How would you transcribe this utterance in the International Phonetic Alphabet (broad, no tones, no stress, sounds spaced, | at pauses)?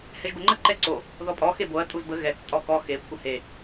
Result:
h ɛ ʒ b ə ŋ͡ǃ ə ǃ ɛ ǀ o | ð ɔ pʼ ɔ x e b o ɐ̯ tʼ u z b ə ɣ ɛ k tʼ ɔ k ɔ x e kʷʰ ə h e